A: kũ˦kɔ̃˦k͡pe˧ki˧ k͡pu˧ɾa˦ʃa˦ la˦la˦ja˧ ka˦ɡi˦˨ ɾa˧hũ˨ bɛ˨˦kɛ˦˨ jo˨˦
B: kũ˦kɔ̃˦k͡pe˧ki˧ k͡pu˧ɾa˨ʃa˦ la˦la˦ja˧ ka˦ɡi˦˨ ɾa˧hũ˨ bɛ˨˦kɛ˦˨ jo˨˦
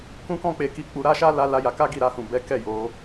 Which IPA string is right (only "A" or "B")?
A